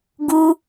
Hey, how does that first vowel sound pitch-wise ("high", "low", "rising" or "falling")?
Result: high